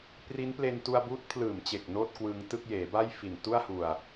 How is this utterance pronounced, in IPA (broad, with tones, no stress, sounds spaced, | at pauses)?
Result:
p r i˦˥ n p l e˧ n t u˧ a̯ b uː˦˥ t̚ pʰ l ɯː˨˩ m t͡ɕ e˨˩ k̚ n oː˥˩ t̚ k w ɯː˧ ŋ t ɯ˥˩ k̚ j eː˩˦ b a˥˩ j f i˨˩ n t u˥˩ a̯ h u˨˩ a̯